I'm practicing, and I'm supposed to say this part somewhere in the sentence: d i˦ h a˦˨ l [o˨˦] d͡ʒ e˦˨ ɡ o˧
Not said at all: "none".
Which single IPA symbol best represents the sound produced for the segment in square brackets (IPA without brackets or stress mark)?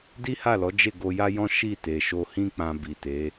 ɔ˨˦